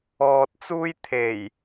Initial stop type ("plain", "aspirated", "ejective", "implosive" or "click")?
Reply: plain